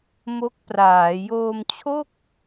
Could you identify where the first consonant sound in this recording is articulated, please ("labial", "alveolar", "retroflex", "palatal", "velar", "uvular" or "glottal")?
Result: labial